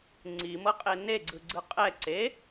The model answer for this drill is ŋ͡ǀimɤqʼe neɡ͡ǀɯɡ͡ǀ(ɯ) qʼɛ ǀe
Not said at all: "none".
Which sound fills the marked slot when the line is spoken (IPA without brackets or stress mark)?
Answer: ɯ